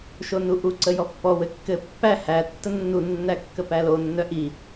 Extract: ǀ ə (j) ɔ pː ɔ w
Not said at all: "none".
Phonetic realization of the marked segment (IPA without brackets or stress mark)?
j